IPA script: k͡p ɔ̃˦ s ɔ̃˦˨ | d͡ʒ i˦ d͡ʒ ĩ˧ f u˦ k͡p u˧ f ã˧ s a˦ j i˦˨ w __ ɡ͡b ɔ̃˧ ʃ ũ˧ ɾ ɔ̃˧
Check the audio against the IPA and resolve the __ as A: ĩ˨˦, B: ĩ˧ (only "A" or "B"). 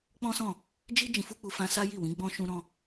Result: A